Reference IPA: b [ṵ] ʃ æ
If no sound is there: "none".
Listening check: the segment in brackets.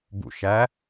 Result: ṵ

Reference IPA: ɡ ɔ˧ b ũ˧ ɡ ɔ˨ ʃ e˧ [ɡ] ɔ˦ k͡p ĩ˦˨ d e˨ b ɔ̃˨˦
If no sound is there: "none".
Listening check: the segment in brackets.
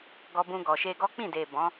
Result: ɡ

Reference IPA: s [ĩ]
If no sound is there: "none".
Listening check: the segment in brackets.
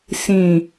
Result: ĩ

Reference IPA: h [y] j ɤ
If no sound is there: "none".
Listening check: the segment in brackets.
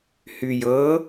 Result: y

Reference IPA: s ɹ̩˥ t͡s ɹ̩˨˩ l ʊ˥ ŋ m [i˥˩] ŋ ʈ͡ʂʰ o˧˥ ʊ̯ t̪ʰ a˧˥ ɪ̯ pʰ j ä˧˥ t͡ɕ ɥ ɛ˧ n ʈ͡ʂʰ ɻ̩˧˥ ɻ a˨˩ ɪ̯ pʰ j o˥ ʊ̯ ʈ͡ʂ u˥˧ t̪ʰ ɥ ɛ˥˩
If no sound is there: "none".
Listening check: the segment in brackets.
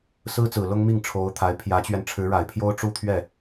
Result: i˥˩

